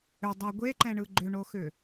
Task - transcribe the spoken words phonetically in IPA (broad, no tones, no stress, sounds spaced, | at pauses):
ʏ dˤ ɛ ɡʷ e ǃ ɛ̃ ɳ ɯ ɡ͡ǃ ʏ ɳ o x ʏ